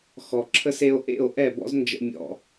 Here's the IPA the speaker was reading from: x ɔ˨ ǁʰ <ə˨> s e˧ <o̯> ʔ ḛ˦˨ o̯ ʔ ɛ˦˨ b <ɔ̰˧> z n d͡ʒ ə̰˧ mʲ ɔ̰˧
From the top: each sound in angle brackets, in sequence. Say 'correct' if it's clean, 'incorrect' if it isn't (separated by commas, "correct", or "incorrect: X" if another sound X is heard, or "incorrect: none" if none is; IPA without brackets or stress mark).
incorrect: ə˧, correct, incorrect: ɔ̰˦